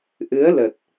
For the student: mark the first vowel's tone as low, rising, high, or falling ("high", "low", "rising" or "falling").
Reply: rising